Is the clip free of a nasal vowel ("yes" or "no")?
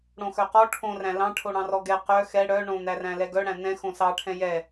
no